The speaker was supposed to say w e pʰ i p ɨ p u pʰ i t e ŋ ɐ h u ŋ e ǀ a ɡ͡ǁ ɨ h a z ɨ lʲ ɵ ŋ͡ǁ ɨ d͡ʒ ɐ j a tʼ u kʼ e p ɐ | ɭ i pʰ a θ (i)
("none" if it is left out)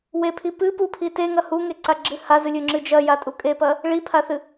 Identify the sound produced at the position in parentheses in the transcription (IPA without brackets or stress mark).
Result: ɨ